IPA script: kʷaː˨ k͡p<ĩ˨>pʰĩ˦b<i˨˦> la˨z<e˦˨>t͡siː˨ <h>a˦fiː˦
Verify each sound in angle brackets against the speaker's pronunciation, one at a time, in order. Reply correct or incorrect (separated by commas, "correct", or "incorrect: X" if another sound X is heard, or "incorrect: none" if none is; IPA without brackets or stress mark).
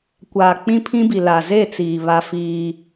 incorrect: ĩ˦, incorrect: i˨, correct, incorrect: β